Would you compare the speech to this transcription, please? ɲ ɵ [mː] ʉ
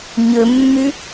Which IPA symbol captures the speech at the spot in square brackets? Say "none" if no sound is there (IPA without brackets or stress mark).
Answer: mː